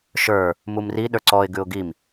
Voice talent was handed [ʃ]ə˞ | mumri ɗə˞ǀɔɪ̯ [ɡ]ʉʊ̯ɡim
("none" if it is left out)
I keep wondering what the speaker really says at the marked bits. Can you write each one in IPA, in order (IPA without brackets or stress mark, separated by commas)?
ʃ, ɡ